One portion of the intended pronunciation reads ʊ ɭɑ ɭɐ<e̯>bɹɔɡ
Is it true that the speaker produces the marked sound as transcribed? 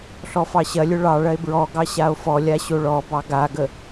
yes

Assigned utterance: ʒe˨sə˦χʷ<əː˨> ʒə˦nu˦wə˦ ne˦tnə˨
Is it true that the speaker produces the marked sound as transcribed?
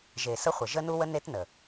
no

